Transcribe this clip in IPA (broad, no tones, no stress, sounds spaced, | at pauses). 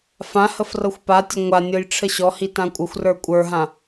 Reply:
f ã h ə f r ɤ xʷ p a tʲ ə ŋʷ a nʲ ɤ j ʈ͡ʂʰ ə ɕ ɔ h i t ã kʷʼ ə xʷ r ə˞ kʷʼ ə˞ ɦ ã